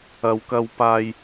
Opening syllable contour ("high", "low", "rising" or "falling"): low